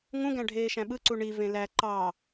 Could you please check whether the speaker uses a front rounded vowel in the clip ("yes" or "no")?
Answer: no